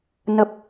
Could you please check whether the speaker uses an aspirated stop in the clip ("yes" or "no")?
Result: no